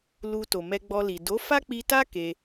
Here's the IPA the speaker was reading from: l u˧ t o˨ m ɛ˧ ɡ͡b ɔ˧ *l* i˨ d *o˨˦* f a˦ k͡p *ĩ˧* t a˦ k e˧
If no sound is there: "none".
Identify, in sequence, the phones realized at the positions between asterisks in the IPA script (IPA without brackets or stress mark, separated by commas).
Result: l, o˨˦, i˧